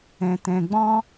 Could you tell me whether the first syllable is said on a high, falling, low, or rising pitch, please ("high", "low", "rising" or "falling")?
low